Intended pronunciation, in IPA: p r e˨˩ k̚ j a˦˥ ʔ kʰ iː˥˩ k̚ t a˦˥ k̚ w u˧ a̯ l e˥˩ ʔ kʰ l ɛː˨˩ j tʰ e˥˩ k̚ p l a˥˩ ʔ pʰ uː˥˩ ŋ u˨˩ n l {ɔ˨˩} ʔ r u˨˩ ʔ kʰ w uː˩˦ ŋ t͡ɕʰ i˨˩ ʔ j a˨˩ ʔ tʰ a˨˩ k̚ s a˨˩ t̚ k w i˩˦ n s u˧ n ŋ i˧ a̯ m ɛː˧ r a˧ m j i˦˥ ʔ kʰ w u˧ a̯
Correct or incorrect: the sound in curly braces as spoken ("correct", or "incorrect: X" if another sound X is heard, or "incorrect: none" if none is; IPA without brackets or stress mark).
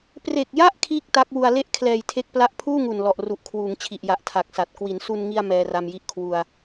correct